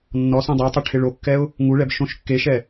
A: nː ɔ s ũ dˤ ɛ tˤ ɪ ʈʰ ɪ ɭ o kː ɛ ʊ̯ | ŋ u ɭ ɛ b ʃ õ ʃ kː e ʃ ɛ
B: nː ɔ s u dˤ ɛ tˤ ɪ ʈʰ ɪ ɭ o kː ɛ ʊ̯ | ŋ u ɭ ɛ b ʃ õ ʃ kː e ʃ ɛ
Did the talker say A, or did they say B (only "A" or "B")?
A